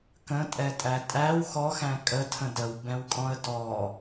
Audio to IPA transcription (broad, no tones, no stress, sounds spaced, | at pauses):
k ə̃ tʼ ɛ tʼ æ tʼ æ w x ɔ x æ̃ kʼ ə tʰ ə̃ d ə w b ɛ̃ w kʼ ɔ̃ ə̯ d ɔ